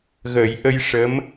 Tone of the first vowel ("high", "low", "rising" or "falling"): low